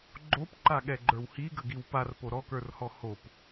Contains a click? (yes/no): yes